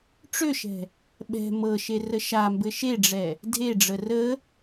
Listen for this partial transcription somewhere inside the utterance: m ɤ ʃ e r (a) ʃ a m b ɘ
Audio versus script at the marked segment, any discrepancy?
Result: yes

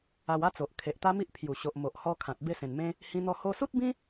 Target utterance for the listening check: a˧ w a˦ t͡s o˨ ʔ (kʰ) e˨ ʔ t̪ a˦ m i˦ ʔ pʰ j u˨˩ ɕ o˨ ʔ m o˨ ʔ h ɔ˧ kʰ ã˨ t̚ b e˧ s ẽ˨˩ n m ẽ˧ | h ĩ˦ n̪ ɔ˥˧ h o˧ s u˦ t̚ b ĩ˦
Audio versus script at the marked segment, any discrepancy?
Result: no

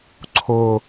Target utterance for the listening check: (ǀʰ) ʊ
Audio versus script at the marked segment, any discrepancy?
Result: no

